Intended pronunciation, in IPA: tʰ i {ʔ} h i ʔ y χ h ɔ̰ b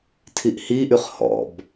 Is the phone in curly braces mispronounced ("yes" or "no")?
no